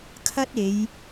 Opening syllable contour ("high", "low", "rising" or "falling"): high